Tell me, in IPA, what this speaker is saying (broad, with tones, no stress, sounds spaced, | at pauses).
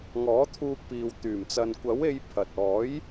ŋ ɔː˨˥ t̪ʰ uː˧ k̚ p iː˨ w t̪ yː˨˩ m t͡s ɐ˨ n kʷ ɐ˨˥ w e˧ j pʰ ɐ˨ t̚ ɔː˨˥ j